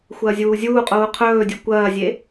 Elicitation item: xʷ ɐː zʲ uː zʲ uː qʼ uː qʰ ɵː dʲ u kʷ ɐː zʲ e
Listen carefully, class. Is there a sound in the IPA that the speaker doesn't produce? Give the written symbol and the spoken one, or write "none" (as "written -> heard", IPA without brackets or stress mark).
none